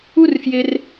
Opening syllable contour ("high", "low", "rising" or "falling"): high